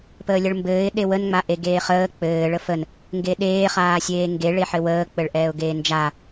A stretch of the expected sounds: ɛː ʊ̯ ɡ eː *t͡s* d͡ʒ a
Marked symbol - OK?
no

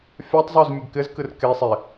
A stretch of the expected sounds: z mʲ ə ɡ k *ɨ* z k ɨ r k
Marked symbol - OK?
no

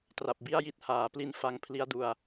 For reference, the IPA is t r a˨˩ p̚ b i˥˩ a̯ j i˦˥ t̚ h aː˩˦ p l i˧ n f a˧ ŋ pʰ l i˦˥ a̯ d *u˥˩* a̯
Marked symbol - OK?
no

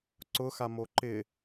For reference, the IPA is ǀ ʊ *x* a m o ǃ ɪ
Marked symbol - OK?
yes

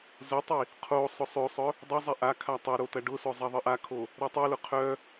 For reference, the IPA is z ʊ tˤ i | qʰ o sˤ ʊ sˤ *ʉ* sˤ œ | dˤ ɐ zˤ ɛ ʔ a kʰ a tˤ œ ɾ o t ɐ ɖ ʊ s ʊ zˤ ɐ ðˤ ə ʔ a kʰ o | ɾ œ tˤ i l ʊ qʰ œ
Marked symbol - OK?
no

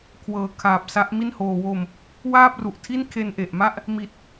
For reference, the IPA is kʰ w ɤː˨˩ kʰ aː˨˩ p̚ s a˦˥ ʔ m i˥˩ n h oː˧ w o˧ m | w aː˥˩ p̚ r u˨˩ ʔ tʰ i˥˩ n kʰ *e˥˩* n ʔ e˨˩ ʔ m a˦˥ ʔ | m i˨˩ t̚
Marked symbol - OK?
no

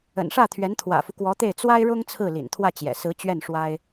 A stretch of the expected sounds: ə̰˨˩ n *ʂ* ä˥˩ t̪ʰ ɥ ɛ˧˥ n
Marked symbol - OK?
yes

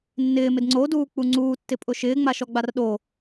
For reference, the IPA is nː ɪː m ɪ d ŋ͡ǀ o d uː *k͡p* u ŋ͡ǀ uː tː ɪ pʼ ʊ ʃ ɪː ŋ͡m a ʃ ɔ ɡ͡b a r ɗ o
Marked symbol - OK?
yes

